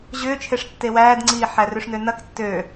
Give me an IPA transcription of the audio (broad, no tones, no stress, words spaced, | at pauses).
ʑʏːt͡ʃʰeʂ tːewæːdŋ͡ǀiː ħærʏʂnønɐk tːø